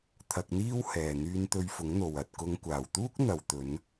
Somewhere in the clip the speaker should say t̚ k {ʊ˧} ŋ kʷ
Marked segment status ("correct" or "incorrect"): correct